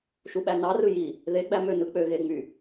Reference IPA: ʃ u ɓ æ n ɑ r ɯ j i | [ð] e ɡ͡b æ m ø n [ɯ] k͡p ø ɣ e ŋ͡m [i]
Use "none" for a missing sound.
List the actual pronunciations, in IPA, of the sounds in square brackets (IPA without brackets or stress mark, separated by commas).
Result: ð, ɯ, y